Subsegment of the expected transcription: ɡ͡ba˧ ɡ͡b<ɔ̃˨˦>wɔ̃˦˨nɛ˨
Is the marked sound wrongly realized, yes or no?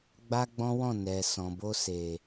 yes